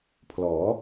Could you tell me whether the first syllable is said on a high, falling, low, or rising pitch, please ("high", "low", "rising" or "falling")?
rising